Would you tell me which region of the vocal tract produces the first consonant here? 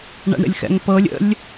retroflex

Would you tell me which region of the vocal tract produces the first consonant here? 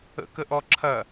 velum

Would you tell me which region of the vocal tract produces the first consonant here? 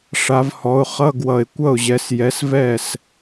retroflex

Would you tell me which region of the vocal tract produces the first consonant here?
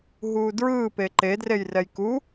throat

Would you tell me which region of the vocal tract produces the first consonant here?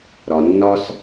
tongue tip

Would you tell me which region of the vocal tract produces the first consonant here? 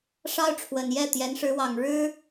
retroflex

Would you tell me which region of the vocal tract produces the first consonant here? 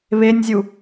lips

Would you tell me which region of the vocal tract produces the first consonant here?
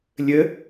tongue tip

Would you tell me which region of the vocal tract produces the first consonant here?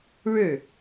retroflex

